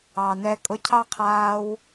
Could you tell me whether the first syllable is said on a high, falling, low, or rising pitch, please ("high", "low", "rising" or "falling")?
low